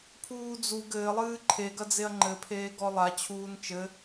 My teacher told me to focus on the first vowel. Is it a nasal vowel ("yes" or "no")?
no